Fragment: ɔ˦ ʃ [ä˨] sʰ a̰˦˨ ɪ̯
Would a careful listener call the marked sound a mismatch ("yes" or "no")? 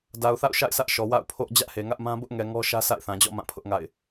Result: yes